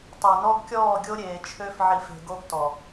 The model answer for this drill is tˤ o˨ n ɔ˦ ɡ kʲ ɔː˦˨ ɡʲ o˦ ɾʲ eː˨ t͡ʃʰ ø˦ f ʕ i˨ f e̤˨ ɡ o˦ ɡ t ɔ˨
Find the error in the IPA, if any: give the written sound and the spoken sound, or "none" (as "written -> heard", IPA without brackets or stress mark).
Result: none